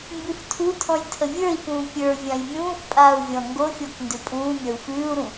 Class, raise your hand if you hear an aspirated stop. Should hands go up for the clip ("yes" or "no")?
yes